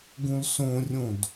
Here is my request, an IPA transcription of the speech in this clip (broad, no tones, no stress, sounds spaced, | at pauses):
ɡ ũ l s õ rʲ õ d